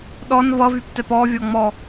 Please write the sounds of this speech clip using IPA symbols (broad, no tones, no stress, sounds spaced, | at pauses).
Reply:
ɗ ɔ n v ʌ v y p t ɛ p ɔ vʲ ɔ ŋ͡m ɔ